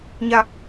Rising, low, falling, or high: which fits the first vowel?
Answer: high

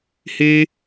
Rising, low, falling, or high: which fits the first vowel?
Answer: high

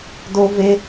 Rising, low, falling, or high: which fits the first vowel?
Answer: high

